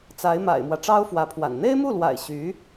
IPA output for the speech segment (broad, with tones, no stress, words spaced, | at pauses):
t͡sa˧˥ɪ̯ma̰˨˩ɪ̯mwä˦ ʈ͡ʂɑ˥ʊ̯fwä˧˥pʰwa̰˨˩n n̪e˥ɪ̯mu˥˩lwa̰˨˩ɪ̯ ɕy˧˥